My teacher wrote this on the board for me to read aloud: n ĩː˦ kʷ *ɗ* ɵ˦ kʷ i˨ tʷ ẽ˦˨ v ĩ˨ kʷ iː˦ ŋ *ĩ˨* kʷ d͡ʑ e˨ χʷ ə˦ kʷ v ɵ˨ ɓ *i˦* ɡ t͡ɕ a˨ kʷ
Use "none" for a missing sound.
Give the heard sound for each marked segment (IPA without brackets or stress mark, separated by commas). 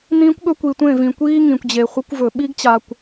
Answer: ɠ, ĩ˨, i˦